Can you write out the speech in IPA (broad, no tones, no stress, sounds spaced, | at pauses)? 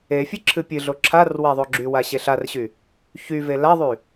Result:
e fʲ ɨ ǁʰ ɨ pʲ ɨ ɮ o ǁʰ a r w a ðˤ o ɡ͡ǁ y w a ɕ e ɬ a r ɕ y | ç y v e l a ðˤ y